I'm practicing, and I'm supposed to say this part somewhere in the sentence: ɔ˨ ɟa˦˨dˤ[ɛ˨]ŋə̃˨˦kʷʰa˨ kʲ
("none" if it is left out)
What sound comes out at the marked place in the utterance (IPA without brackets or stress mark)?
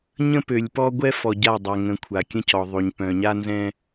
ɛ˨